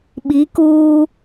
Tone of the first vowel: rising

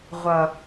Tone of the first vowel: low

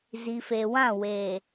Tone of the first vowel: low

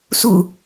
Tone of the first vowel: low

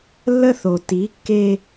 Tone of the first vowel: high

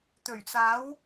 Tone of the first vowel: low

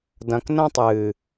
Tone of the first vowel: low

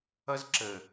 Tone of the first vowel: high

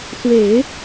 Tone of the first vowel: low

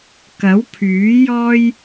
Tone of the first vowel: rising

